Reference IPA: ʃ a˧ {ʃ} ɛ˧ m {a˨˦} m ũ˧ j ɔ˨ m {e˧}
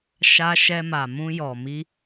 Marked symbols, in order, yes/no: yes, no, no

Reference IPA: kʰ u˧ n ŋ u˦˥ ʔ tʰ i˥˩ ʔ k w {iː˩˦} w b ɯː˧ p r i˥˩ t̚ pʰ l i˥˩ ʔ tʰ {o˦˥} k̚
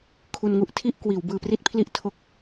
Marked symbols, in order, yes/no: yes, yes

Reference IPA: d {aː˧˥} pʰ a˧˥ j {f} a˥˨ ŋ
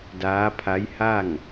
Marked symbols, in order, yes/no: yes, no

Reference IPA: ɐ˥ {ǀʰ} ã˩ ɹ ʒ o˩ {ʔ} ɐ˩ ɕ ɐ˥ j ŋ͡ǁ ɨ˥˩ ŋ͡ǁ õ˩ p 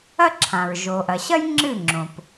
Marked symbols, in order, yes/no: no, yes

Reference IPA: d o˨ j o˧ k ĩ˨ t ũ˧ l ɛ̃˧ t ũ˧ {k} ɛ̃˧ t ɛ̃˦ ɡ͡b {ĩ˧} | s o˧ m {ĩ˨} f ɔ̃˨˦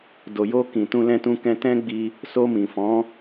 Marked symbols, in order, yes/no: yes, no, yes

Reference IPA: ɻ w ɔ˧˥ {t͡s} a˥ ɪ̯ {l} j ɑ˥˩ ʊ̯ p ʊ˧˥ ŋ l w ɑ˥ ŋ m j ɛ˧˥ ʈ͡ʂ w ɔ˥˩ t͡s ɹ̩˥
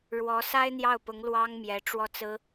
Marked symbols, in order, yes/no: no, no

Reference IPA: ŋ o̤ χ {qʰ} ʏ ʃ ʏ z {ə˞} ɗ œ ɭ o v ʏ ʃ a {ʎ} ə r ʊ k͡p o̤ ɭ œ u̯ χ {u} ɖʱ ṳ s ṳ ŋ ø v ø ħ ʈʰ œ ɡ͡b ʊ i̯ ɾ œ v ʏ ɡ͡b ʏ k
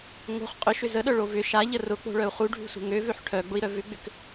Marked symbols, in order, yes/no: no, no, yes, yes

